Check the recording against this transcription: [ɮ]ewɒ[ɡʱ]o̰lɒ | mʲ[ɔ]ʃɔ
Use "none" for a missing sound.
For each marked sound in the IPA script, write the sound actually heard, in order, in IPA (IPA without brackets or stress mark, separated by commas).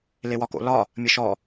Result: l, k, ə